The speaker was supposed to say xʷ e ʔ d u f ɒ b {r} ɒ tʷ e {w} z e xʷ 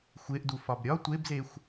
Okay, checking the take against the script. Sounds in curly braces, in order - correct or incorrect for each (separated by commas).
incorrect, incorrect